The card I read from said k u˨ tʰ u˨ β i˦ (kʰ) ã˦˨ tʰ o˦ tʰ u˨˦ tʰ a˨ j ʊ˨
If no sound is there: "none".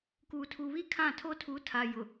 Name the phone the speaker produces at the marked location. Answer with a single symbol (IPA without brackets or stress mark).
kʰ